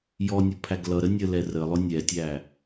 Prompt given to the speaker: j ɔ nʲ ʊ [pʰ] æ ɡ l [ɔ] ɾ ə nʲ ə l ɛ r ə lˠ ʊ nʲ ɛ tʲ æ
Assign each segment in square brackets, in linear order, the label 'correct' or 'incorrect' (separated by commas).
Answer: correct, incorrect